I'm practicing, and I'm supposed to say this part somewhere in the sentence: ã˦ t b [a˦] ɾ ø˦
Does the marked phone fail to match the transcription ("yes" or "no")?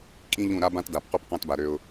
yes